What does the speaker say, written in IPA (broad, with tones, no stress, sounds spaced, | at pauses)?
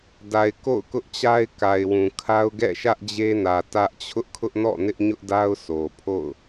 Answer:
d a˨ ɪ̯ k o̰˦˨ ʊ̯ k ʊ˦ ʔ t͡ɕ a˦ ɪ̯ k a˨ ɪ̯ w ũ˨ kʰ a˦ ʊ̯ ɡ ɛ̰˦˨ ʃ ä˦ ʔ d͡ʑ e˦ n ä˨ t ä˦ ʔ t͡ɕʰ ʊ˦ ʔ kʰ ʊ˦ ʔ n ɔ̰˦˨ n ɪ˦ ʔ ɲ ʊ˦ ʔ d a˦ ʊ̯ sʰ o˨ pʰ o̰˦˨ ʊ̯